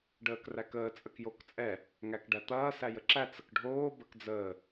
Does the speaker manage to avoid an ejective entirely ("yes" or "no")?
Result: no